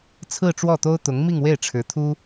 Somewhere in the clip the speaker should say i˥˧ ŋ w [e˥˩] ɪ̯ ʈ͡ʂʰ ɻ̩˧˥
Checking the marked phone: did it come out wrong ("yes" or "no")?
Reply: no